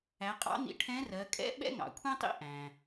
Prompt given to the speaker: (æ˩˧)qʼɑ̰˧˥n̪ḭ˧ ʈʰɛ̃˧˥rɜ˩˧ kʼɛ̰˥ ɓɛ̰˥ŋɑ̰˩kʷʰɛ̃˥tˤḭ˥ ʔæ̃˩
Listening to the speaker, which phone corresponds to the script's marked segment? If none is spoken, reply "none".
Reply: æ˩˧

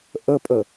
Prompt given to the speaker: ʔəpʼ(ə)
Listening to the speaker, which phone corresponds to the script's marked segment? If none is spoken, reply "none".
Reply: ə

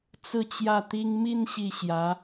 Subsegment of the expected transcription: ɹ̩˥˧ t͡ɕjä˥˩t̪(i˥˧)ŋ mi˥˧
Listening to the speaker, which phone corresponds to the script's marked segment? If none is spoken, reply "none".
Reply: i˥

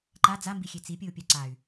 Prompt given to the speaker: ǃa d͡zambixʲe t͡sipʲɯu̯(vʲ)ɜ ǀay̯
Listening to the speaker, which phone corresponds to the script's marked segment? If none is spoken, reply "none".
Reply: pʲ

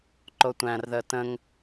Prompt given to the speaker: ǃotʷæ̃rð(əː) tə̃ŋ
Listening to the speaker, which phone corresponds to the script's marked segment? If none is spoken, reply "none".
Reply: əː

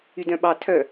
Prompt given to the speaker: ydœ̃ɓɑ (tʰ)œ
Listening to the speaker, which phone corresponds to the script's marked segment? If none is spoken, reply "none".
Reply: tʰ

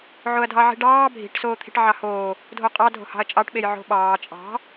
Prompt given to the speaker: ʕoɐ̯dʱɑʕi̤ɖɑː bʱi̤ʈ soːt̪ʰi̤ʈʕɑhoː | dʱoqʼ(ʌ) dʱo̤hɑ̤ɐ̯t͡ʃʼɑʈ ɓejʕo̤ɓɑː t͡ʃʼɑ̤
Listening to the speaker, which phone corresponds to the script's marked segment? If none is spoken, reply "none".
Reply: ɑ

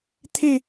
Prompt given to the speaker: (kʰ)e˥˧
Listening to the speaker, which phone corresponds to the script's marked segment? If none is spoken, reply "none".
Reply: t̪ʰ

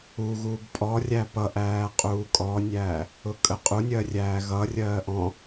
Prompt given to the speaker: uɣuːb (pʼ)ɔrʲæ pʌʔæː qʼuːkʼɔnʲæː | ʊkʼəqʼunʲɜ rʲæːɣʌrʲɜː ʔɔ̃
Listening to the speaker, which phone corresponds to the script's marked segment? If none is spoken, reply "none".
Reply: pʼ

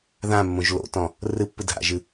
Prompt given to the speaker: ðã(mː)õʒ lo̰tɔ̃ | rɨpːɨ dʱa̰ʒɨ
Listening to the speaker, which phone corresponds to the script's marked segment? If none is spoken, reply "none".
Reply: mː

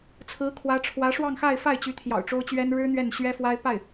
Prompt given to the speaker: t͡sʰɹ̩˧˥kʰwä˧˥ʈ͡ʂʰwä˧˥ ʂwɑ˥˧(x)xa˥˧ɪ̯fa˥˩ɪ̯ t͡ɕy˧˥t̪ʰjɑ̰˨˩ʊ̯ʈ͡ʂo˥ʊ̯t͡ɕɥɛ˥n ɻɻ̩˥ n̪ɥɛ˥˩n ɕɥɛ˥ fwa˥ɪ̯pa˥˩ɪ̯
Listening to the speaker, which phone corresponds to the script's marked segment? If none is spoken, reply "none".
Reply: ŋ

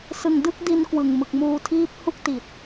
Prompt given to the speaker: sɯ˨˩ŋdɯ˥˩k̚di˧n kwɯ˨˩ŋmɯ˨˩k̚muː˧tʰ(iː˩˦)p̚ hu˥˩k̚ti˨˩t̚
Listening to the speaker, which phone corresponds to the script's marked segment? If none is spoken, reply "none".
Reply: iː˦˥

